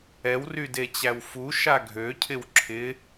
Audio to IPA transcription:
ɛ w r y d e t͡ɕ æ w f u ʃ a ɡʱ ø cʰ ɪ w ǁʰ ɪ

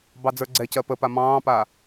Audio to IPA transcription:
b ɑ d͡z ə˞ ɡ͡ǀ ɛ c ɜ p ə p a m ɑ̃ː p a

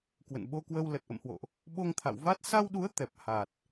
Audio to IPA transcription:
k w ə̰˧˨ n ɓ o˧ k w ə˧ w l ə˨˩ t̚ ʔ ə̰˧˨ m h w o̰˧˨ ʔ | ɓ o˧ ŋ t̪ʰ a̰˧˨ w v a˦˥ t̚ s a˧ w ɗ u˨˦ ə̯ t̪ ɛ˨˩ p̚ h a˨˩ t̚

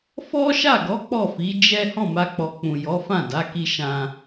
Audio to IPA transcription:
f ɔ˦ ʃ a˦˨ ɡ ɔ˨˦ k͡p ɔ˦˨ f i˨˦ d͡ʒ ɛ˦ h ɔ̃˦˨ m a˧ k͡p ɔ˨ k͡p ũ˨ j ɔ˨˦ f ã˦˨ d a˨˦ k i˧ ʃ ã˧

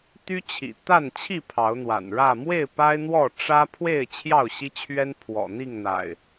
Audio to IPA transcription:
t̪ y˦ t͡ɕʰ ḭ˨˩ t̪ a˥˨ n t͡ɕʰ i˥˨ pʰ ɑ˨˦ ʊ̯ n̪ w a̰˨˩ n ɻ ä˥˨ m w e˥˨ ɪ̯ p a˦ ɪ̯ n̪ w ɔ˥˨ ʈ͡ʂ ä˦ pʰ w e˥˨ ɪ̯ t͡ɕʰ j ɑ˥˨ ʊ̯ ɕ i˦ t͡ɕʰ ɥ ɛ˦ n pʰ w ɔ̰˨˩ n̪ i˥˨ ŋ n̪ a̰˨˩ ɪ̯

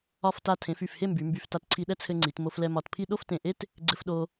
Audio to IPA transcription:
ɒ˧˩ f t a˧˩ tʰ ẽ˩˧ f y˧˩ f h e˥˧ m b y˩˧ m b y˧˩ f t a˧ t ǀʰ i˧ ɗ ɛ˥ t͡sʰ ɘ˧ ŋ͡ǀ i˩˧ t m o˧ f l ɛ˧ m ɒ˧˩ t pʰ i˥˧ ɗ o˥˧ f t ẽ˧˩ ʔ e˥ t | ɡ͡ǀ ɘ˧ f ɗ o˧

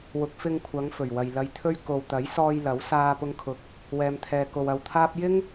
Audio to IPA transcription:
w ʊ˨˥ k̚ f ɪ˧ ŋ kʷʰ ɐ˨˧ ŋ f ɵ˨˩ ɥ w ɐ˨ j l ɐ˧ j t̪ʰ ɵ˥ ɥ k o˨ w t̪ ɐ˨˥ j s ɔː˧ j l ɐ˨˥ w s aː˧ p ʊ˧ ŋ kʰ ʊ˨˥ k̚ | w ɛː˧ m t̪ʰ ɛː˧ k o˧ w ɐ˧ w t̪ʰ aː˥ p̚ j ɪ˥ ŋ

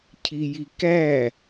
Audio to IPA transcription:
cʰ i j i k æ

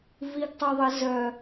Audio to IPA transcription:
v i ɡ tˤ u ðˤ ə z œ

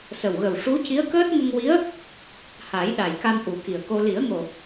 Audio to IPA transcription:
s ə˨˩ w ɣ ə˨˩ w ʂ u˧˥ c i˧˥ ə̯ k əː˦˥ t̚ ŋ ə˧ ŋ w i˧˥ ə̯ | h a˨˩˦ j ɗ a˨˩ j k a˧ m ʔ u˨˩˦ k i˨˩ ə̯ k o˧ l i˨˩˦ ə̯ ŋ o˨˩

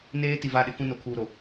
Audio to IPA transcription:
n eː˦ t i˨ v a˦˨ ɗ ɪ˦ k ũ˦ n o˨ kʰ uː˨ ɾ o˨

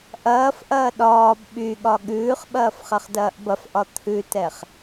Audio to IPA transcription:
ʔ ɐː f ʔ ɐː ɗ ɒː b ɓ y ɠ ɒ ɠ ʉː χ ɓ ɐː f χ ɐ χ d ɐː ʔ b ɐ f ʔ ɒ t̪ʰ ʉ t ɛ χ

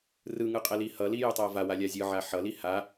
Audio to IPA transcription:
r ɯ ŋ ɯ qʼ ɛ l i h ʌ l i j u tˤ a v a w a lʲ a zʲ ɯ ʕ a ħ ʌ l i h a

